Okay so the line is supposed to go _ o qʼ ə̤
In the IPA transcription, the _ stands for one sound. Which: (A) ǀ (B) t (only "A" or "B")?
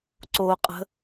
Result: A